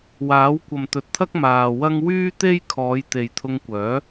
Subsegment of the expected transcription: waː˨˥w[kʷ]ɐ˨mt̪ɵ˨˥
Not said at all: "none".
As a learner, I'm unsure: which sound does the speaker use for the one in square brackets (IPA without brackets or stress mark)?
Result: kʷ